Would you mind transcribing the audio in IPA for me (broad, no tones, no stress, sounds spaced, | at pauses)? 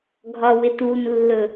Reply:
ɡʱ ɒ w ɪ t u n lː ɵ